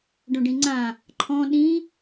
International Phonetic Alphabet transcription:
ɖ õ ɖ ĩ ŋ͡ǀ ã | ǃʰ ɔ̃ ɗ ĩ

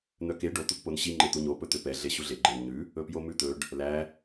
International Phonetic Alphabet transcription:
n̪ œ k e ɖ o t̪ u k p o n ɕ i ŋ͡ǃ e t̪ u ɲ o p ɵ t̪ ø p ɛ ɮ e ɕ u ɮ e ɡ͡ǃ e n ɲ ʉ | ɵ p j o m ʉ t̪ ɵ ɖ | l æ

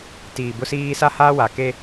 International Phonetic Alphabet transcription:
t iː˨ b ʊ˦ s iː˦ s a˦ h a˦ w a˨ k e˦

